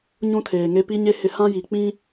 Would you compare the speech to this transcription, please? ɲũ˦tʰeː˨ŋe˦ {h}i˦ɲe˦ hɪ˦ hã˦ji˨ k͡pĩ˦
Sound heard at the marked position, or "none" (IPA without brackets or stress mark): p